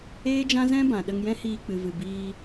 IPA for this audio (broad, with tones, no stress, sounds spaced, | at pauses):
eː˦ d͡ʒ ã˦ z ɛ̃˦ b ã˨ ɗ ə˧ ŋ j ɛ̃˦ h iː˧ k͡p ɨ˨ v ɨ˨ b iː˧